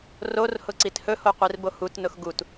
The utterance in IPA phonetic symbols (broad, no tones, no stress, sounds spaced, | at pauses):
r o r h ʊ ǀ i t h ɵ h o qʷ i r b o h u t n ʊ x ɡ u t